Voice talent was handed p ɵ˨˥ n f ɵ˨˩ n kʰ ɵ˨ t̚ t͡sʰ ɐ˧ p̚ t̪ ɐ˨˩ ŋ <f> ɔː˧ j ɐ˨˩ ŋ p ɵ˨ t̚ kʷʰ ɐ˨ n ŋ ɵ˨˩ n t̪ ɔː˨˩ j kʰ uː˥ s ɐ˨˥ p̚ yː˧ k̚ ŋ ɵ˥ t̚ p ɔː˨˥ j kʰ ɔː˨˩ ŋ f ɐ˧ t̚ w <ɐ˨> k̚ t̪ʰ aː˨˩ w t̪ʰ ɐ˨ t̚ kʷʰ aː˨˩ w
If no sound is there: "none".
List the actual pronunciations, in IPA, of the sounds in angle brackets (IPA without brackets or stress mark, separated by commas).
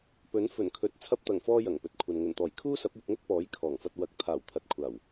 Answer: f, ɐ˨˥